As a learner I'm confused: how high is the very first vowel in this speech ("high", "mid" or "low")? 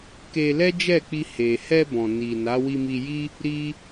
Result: mid